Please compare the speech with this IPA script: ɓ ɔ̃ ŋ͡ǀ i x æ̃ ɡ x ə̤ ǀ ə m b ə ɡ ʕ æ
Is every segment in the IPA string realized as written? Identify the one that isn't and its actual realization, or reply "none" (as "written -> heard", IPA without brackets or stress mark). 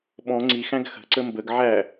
none